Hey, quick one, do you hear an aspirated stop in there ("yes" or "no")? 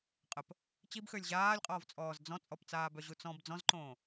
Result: no